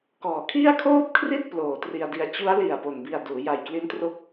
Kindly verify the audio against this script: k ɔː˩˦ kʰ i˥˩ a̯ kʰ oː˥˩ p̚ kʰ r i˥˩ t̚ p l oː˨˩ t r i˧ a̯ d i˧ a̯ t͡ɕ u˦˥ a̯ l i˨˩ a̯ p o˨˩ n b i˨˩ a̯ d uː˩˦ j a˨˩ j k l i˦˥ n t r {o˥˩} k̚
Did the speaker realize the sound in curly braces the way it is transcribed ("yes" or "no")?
no